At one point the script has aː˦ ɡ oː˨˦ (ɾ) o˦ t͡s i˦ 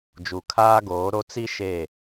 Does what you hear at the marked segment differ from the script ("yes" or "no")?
no